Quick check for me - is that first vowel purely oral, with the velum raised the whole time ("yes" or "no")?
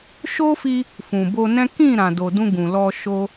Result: yes